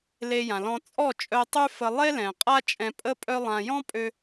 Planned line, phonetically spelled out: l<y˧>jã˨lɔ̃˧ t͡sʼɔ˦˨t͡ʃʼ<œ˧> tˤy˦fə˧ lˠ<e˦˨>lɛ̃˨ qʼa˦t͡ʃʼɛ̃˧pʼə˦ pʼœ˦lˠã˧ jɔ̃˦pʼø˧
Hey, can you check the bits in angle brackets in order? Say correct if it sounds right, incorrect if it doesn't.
incorrect, correct, incorrect

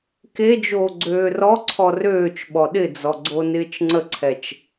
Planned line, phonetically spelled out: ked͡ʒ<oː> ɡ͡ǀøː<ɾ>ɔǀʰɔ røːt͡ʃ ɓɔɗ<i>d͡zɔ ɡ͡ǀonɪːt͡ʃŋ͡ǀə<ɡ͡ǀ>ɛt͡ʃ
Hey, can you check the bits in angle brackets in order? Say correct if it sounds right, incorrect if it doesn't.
correct, incorrect, incorrect, incorrect

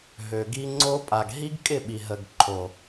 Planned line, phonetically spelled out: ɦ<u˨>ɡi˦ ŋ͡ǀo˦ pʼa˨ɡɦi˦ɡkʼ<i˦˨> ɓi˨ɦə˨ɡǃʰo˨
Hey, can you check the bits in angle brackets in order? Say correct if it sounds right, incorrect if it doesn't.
incorrect, incorrect

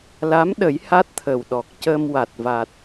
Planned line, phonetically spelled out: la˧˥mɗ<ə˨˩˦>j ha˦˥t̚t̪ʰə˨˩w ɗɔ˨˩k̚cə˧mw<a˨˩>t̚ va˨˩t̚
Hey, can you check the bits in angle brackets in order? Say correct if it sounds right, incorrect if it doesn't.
correct, correct

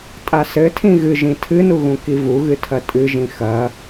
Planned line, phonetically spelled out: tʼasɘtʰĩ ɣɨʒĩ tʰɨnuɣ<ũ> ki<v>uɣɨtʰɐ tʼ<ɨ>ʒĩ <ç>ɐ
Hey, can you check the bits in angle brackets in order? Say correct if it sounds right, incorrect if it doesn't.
correct, correct, correct, incorrect

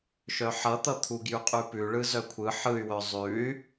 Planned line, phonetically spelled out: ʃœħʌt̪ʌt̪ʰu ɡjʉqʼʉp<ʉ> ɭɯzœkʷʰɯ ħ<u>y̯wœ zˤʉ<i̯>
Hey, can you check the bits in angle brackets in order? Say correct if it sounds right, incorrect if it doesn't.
correct, incorrect, incorrect

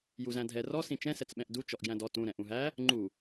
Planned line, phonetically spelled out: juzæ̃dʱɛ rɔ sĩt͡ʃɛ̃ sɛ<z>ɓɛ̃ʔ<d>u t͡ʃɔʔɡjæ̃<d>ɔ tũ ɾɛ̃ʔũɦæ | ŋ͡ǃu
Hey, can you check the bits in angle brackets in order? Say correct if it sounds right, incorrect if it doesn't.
incorrect, correct, correct

